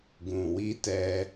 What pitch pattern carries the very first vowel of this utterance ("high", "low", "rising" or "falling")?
low